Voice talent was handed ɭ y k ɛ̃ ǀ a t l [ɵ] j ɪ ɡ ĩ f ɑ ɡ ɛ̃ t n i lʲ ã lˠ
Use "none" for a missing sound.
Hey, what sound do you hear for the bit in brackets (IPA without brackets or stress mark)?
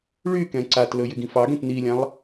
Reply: ɵ